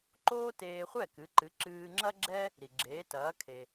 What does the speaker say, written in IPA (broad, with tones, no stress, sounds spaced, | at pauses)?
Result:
ǃ oː˥ t eː˧ χʷ ɛ˥˩ k ɨ˩˥ ǃ ɨ˩˥ ǁ ɨː˧ ŋ͡ǁ ɐ˥ ɡ͡ǁ ɛ˥ | ɾ i˩ ɡ͡ǁ eː˩˥ t ɐː˩˥ kʰ e˩